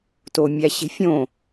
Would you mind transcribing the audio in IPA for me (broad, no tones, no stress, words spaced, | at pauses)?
tomʲæɕe̤fʲõ